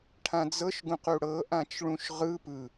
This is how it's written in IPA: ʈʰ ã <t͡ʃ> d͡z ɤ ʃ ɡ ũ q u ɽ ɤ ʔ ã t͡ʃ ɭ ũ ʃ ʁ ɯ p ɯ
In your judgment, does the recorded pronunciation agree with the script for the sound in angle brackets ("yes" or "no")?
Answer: no